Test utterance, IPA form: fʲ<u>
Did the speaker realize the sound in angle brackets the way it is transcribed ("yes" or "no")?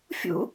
no